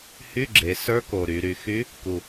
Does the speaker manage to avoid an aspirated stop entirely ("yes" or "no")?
yes